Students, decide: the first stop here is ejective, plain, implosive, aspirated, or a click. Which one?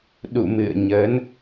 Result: implosive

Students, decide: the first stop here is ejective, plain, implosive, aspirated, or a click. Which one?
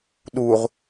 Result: implosive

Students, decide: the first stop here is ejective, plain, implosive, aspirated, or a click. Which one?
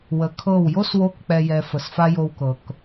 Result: aspirated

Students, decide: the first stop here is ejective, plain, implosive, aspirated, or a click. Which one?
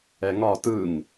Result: plain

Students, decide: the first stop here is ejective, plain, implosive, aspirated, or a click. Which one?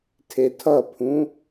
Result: aspirated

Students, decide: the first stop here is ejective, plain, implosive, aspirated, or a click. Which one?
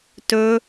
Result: plain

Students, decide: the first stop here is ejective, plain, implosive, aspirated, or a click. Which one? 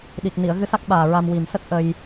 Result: implosive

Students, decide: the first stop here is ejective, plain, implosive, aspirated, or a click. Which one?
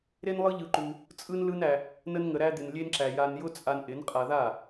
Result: click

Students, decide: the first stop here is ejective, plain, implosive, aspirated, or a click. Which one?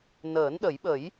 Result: implosive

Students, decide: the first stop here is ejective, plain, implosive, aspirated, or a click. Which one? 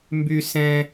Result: plain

